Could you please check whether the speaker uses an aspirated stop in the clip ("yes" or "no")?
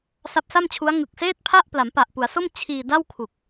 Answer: yes